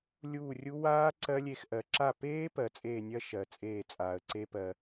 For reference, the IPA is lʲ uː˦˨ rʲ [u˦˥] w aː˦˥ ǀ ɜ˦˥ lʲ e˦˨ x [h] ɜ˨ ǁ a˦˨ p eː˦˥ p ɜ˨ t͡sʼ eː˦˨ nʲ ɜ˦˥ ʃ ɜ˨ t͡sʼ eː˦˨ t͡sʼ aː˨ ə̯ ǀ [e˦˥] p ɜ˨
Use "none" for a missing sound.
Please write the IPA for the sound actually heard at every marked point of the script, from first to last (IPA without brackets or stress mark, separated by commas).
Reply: u˦˥, ʔ, e˦˥